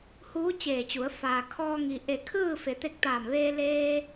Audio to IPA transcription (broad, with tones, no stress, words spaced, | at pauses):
huː˧˥t͡ɕeː˧˩t͡ɕu˩˧ə̯ faː˩kʰɔː˧ŋi˩ ʔe˧˩kʰɯː˥˨fe˩ t̪e˧k̚t̪aː˧˩mʋeː˧ leː˧